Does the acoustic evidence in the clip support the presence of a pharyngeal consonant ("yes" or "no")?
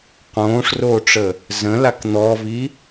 no